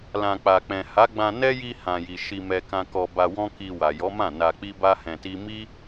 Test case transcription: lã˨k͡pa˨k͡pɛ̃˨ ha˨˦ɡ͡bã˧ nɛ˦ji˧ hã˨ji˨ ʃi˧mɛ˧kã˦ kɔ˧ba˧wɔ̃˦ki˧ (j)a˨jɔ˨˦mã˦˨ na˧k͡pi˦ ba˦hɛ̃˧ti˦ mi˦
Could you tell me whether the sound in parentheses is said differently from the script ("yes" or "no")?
yes